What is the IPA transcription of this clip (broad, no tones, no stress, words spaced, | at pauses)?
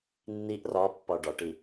nːiʔ rɒpːɒ ɖɒʈi